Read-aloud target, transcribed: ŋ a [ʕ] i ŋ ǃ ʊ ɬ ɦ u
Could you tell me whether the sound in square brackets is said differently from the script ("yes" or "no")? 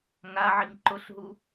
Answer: no